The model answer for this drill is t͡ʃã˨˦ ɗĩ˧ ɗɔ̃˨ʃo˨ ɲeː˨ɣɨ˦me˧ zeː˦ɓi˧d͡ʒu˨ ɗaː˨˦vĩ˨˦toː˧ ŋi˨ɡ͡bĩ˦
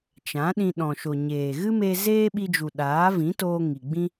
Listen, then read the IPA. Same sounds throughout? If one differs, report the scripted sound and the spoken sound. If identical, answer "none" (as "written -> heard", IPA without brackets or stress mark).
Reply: none